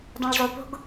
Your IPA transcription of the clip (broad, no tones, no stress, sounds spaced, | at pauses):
dˤ õ ɭ zˤ u p o̤ ɡ